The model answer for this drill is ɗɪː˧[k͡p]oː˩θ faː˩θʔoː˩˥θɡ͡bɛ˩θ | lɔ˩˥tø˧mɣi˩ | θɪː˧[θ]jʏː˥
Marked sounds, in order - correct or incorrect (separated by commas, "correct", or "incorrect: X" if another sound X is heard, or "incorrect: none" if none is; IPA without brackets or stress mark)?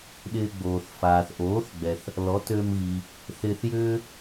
incorrect: ɡ͡b, correct